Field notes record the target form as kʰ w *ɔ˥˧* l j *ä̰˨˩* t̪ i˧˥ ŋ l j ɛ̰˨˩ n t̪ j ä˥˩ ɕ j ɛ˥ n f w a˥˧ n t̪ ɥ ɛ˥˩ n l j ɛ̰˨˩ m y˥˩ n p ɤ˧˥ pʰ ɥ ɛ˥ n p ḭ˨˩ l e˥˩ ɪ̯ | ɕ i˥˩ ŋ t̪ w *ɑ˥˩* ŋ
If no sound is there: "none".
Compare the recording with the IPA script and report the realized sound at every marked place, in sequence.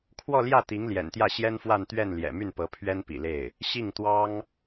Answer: ɔ˥˧, ä˥˩, ɑ˥

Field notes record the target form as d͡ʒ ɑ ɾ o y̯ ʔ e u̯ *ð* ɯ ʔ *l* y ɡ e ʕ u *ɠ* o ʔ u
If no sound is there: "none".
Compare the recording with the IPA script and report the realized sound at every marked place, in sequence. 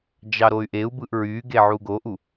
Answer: b, ɹ, ɡ

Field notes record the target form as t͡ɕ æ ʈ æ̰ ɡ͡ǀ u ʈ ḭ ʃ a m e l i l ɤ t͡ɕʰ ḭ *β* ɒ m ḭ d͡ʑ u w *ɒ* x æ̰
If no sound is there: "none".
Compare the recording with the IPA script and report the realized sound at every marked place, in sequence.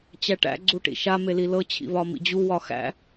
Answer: β, ɒ

